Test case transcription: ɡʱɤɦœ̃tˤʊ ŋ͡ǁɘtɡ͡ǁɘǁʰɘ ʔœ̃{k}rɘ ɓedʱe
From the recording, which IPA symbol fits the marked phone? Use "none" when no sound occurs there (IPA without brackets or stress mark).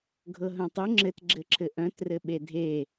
t